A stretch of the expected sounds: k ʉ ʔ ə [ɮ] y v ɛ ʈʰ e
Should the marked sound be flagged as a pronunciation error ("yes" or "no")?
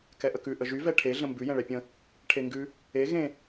yes